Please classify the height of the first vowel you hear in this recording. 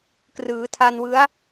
high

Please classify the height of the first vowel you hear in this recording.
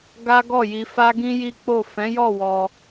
low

